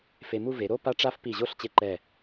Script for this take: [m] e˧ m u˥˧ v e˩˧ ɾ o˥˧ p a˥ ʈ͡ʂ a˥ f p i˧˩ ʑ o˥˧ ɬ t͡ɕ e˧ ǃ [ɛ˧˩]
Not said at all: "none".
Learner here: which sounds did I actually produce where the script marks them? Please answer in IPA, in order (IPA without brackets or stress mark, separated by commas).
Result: f, ɛ˧˩